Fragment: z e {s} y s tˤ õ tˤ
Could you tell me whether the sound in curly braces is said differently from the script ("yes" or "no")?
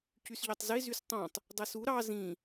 yes